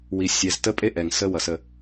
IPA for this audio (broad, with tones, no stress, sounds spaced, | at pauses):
w i˨ sʲ ɛ˨ z t ə˦ pʼ e˦ ʔ ɛ˨ ŋ s ə˦ w ʌ˨ s ə˨